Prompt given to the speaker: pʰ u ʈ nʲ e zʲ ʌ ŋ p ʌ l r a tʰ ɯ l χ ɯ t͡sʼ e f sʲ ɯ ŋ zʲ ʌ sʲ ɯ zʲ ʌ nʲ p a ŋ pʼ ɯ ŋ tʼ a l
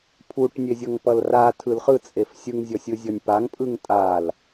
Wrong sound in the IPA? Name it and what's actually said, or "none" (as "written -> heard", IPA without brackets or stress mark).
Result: none